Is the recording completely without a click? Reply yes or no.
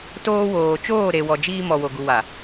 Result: yes